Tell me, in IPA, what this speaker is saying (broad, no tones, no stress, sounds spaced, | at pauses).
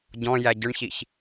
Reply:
ɟ ɔ̃ j æ ɟ ʊ ɳ ç i ç